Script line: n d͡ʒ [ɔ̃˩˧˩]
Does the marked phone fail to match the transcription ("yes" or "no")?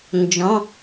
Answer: no